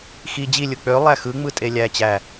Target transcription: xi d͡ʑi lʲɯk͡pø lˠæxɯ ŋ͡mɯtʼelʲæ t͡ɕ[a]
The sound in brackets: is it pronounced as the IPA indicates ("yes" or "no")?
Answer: no